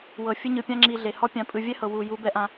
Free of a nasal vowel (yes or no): no